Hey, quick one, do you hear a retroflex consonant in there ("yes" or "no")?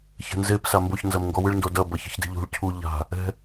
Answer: yes